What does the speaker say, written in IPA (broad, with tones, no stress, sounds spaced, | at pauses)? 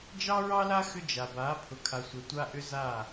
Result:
d͡ʒ ɑ˦ ɹ ɑ˦ l a˦ x ʏ˦ d͡ʒ a˨ b a˨˦ pʰ ʊ˨ kʰ a˨ sʷ ɛ˨ tʷ a˦ ʔ ʏ˦ z a˦˨